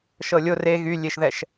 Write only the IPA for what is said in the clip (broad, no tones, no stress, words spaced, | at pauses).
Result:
ʃɤlʲo re ɣylʲeʃðɛʃ